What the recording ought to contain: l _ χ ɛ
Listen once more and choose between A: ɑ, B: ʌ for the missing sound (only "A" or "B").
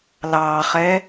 A